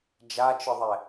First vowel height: low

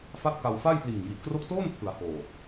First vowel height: low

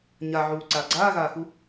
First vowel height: low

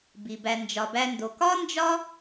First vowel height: high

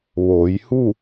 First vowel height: mid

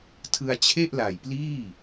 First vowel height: high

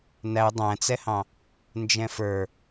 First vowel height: low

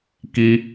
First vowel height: high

